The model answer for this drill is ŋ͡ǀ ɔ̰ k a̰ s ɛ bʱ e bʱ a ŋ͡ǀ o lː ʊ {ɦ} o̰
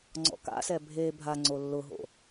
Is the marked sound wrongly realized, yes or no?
no